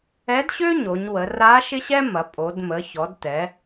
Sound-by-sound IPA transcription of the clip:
ɛ˧˥ d ɕ ø˥ ɲ o˩˧ ɲ w ə˩˧ r a˧˥ ʃ ɪ˥ ɕ ɛ˥ m ɐ˩˧ pʼ o˩˧ d m ə˩˧ ç ɔ˩˧ d t ɛ˩˧

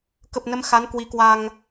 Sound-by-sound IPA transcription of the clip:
k ə˨˩ p̚ n ə˨˦ m x a˨˦ n k w i˨˦ k w a˧ ŋ

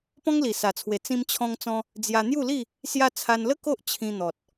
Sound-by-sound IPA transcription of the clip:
p ɔ̃˦ ŋ l i˨˩ s a˨˩ t͡sʰ w e˨˩ t͡s ĩ˧ m t͡ɕʰ ɔ̃˧ ŋ t͡s ɔ̃˧ | d͡z j a˧ n̪ j u˥˧ l i˥˧ | s j a˧ t͡sʰ a˧ n l ə˦ k o˦ ʔ t͡ɕʰ ĩ˧ n̪ ɔ˨ t̚

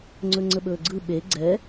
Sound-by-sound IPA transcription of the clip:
ŋ͡ǀ ɵ ŋ͡ǀ ə ɓ ɵː ɡ͡ǀ ɯ ɓ e ɡ͡ǀ ɛ

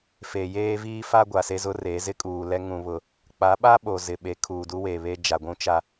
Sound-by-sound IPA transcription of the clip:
f e˨ j eː˦ v iː˦ f a˦ ɡʷ a˨ s e˦ z ʊ˦ r e˨˦ z ɪ˦ kʼ uː˨ l ɛ˦ ŋ ũ˦ β ʊ˦ | k͡p a˨˦ ɓ a˦ ɓ o˨ z ɪ˨ ɓ e˨˦ kʰ uː˨ d u˦ w eː˨ β e˦ d͡ʒ a˨ ɡʷ ũ˦ t͡ʃ a˦

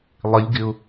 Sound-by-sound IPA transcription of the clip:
lˠ ɪ lʲ ɡ ɪ ʊ̯

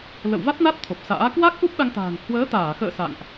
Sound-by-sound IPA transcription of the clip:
l ə̰˧˨ w v a˦˥ t̚ n a˦˥ t̚ t̪ʰ o˨˩ p̚ s a̰ː˧˥ k w a˦˥ k̚ ʔ u˦˥ p̚ ɗ a˧ ŋ t̪ a̤ː˨˩ ŋ h w əː˨˦ t̪ aː˧˩ x ə̰ː˧˨ s a̰˧˨ ŋ ʔ

